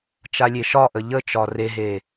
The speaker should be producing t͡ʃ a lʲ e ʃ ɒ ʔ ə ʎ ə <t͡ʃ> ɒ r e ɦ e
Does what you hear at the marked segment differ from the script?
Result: no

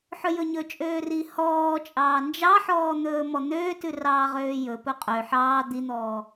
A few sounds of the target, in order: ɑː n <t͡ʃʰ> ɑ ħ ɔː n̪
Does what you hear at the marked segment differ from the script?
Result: yes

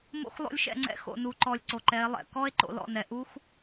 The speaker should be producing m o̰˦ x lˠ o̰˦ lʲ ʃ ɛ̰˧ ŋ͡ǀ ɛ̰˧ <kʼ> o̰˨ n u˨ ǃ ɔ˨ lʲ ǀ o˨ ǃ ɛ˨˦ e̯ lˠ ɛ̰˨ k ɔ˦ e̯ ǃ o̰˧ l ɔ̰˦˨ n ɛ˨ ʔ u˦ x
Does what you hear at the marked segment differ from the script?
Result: yes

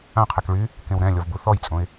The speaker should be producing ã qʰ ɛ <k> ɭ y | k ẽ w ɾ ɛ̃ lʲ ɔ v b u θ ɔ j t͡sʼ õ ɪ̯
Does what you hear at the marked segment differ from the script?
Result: no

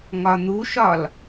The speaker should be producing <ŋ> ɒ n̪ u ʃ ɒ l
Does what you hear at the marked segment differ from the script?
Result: no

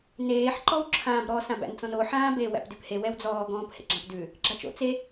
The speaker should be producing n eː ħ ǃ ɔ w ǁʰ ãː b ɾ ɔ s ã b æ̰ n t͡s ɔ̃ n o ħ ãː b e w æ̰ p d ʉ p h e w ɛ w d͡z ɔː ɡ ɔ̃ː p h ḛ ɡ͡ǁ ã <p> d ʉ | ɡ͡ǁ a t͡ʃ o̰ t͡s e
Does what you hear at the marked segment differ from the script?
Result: no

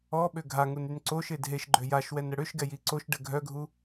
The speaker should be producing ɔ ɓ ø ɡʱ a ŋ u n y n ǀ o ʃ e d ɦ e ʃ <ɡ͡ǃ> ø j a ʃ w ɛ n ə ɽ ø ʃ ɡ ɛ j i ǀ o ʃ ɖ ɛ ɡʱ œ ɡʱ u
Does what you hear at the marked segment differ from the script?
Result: no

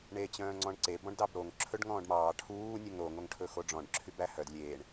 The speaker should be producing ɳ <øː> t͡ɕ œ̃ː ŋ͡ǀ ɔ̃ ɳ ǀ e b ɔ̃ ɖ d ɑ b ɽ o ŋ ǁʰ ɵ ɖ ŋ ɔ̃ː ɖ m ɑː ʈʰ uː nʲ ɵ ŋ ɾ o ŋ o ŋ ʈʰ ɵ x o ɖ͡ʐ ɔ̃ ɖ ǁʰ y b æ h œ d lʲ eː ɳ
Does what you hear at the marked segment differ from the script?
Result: yes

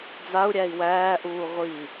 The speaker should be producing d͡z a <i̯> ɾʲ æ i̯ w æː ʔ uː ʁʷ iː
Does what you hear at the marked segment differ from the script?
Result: yes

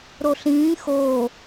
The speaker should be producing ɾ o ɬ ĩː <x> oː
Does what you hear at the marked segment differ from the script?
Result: no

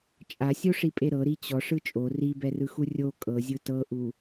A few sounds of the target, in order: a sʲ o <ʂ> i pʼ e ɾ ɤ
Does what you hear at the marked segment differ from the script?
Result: no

